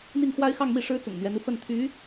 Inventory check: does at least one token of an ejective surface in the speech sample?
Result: no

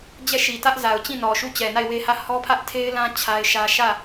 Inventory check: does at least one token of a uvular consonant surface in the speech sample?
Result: no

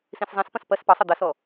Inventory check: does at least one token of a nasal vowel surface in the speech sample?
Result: yes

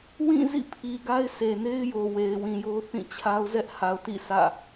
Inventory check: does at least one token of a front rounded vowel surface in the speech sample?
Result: no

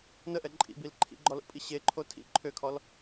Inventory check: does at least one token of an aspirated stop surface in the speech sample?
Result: yes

